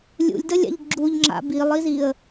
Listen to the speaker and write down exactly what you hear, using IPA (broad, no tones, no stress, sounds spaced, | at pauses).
lʲ ṵ lʲ d ə lʲ a̰ ʎ ɡ͡ǁ u ʎ ŋ͡ǁ a̰ b i lˠ i z i ə̯